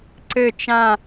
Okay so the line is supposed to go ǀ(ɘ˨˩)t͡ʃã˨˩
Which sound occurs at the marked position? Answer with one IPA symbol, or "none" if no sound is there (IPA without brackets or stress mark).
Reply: ɘ˨˩